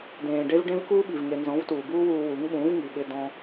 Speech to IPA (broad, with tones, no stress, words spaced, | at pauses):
dẽː˨ɖe˦v ɖẽ˦vkuː˦ɓi˨vŋe˨ nzɔ̃˨˦vtuː˨buː˦wuː˧ wu˨˦ŋɓũː˨˦vŋi˨ ɓɪ˧dɔ̃˧